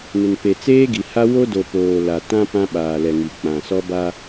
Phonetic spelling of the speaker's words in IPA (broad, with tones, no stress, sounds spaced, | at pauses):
n ɪ˨ n p e˨ t͡s eː˦ ɡ i˨ h a˦ w o˦ d o˨ p oː˨ l a˨ t ã˦ p ã˦ ɓ aː˨ l ɛ˨ ŋ i˨ k͡p ã˨ s ɔ˦ b a˦